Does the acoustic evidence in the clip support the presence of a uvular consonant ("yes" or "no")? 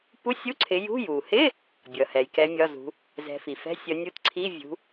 no